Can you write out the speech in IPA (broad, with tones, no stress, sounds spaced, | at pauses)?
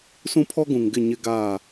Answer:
s ũ˦ pʰ ɔ˦ ɡ ũ˨ ŋ ɡ ɪ˦˨ ɲ ɪ˦ ɡ aː˦˨